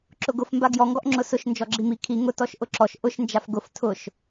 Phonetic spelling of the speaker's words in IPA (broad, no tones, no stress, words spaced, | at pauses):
ǁʊɡʊf mbaɡjɔ ŋɡɔʔŋ͡ǁʊsʊʃ nd͡ʒɔɡ͡ǁimi kʰi ŋʊ tɔʃʔʊǁɔʃ ʔʊʃ nd͡ʒafɡʊf tʰʊʃ